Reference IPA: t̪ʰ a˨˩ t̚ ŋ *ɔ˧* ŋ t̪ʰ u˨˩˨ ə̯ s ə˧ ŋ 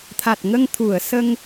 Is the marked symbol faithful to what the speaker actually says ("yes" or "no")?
no